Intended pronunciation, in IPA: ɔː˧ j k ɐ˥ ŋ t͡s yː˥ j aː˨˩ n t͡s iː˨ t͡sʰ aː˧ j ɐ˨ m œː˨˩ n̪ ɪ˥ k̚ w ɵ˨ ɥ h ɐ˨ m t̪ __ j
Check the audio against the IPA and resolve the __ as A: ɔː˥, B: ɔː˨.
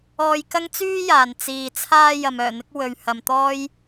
A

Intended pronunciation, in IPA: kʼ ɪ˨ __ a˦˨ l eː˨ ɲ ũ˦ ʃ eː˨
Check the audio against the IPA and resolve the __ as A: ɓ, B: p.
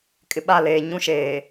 A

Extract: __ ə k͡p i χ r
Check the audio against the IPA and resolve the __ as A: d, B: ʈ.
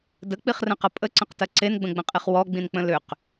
A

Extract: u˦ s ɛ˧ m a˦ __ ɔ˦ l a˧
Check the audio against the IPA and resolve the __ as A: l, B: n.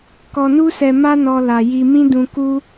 B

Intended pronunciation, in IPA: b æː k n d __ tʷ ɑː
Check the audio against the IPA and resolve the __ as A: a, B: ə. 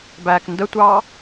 B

